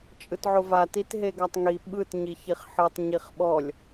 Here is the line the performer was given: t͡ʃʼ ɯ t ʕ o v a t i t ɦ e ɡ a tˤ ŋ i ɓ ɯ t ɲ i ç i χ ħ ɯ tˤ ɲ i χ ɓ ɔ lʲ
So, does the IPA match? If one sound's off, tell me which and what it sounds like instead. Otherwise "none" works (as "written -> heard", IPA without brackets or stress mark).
none